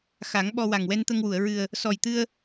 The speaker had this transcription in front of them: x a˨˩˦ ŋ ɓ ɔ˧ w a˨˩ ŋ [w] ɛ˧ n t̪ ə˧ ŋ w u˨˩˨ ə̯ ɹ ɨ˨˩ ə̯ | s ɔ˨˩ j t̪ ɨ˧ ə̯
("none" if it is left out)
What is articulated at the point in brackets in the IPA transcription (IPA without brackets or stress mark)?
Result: w